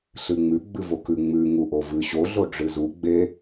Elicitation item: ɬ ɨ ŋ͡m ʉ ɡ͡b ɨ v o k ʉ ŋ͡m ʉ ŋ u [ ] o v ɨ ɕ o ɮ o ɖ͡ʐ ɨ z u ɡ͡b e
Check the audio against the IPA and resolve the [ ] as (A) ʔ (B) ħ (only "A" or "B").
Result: A